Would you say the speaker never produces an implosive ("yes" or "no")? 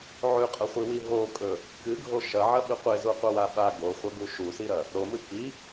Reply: no